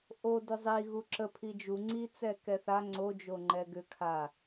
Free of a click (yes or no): no